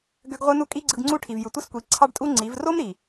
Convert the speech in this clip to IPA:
ɡ ø˧ ɡ ʁʷ ɯ˧ n u˦ kʼ i˦ ɡ͡ǀ ɯ˧ ɡ ŋ͡ǀ u˦ ʈʰ i˨ v j ɯ˨ tʷ i˦ s kʷ i˨˦ ǀʰ ɑ˦ ɖ tʼ u˦ ŋ͡ǀ i˨˦ v r o˦ m ɾ i˨

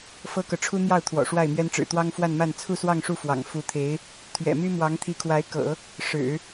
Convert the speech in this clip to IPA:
f ɤ˥ k ɤ˨ ʈ͡ʂʰ u˥ n̪ j ɑ˥˩ ʊ̯ t̪ʰ w ɔ̰˨˩ ʂ w a˥˩ ɪ̯ m ɥ ɛ˥ n ʈ͡ʂ ɻ̩˨˩ t̪ w ɑ˥ ŋ f w a˥˧ n m a˥˧ n t͡sʰ u˥˧ s w ɑ˥˧ ŋ ʂ u˥˩ f w ɑ̰˨˩ ŋ f u˧˥ t̪ʰ e˧˥ ɪ̯ | t̪ʰ ɥ ɛ̰˨˩ m y˥ m w ɑ˧˥ ŋ t̪ʰ i˧˥ kʰ w a˧˥ ɪ̯ k ɤ̰˨˩˦ | ʂ ɻ̩˨˩˦

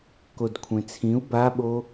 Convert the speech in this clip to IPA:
k o d kʷʰ ẽ t͡sʰ ĩ u̯ b a ɓ o

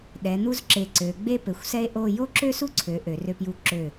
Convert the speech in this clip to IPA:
ɗ ɛ˩˧ n̪ u˥ z ǁ e˧˩ ǀ ø˩˧ ɡ͡b e˥ p ɘ˩˧ xʷ s ɛ˥ e̯ ʔ o˥˧ j o˥ ǁ ø˥ s u˥ ǀʰ ø˩˧ ʔ ø˩˧ r ø˧ p j u˧ ǁ ø˧˩

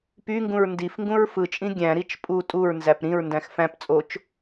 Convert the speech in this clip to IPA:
p y ŋ ɡ ũ ɹ n d i f ŋ ɡ ũ ɹ f ɯ t͡ʃʼ ĩ ɡʲ æ̃ ɾ i t͡ʃ pʼ u tʼ u ɹ n z æ p ɾ ĩ ɹ n d æ̃ x f æ̃ p t͡sʼ o t͡ʃ

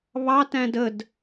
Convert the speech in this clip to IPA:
β ɑ t æ̃ d ə d

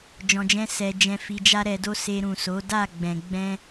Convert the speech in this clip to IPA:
d͡ʒ ɔ̃˧ d͡ʒ ɛ̃˦ s ɛ˧ d͡ʒ ɛ̃˧ f i˧ d͡ʒ a˦ ɾ ɛ˧ d o˦ s e˧ ɾ ũ˨ s o˨˦ d a˦˨ ɡ͡b ɛ̃˨ ɡ͡b ɛ̃˧

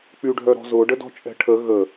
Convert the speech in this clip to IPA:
k͡p y ɖʱ œ ɾ ɔ̤ z ʊ ɖ ə d ɔ̤ t͡ʃʼ ɛ̤ ʈʰ ə ɣ ə

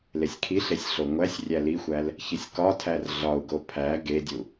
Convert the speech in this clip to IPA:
l e sʲ kʰ i ɬ e sʲ ɬ o ŋʷ æ sʲ rʲ æ l i xʷ æ l | ç i sʲ k ɒ tʰ æ r ɮ ɒ u̯ ɡ o pʰ æ ɡ e dʲ u

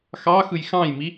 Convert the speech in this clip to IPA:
x ɑ x ɯ j x ɑ̃ j m i

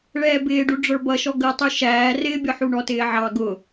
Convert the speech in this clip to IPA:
ɭ ɛː b ɪː ɖ u ɖ͡ʐ ə˞ b ʌ ʃ ɔ ɡ ə tˤ u ʃ æː r ɪː bʲ ɔ ħ u ɳ ɔ t ɪː ʕ ɑ ɡ ʊ

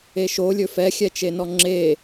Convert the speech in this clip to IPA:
e ʃ o lʲ ɵ f ɛ xʲ ɛ t͡ʃ e n ɔ ŋ͡ǁ e

